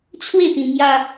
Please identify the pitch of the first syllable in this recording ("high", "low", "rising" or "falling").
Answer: falling